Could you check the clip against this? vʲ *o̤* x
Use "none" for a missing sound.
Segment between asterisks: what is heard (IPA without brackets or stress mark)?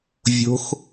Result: o̤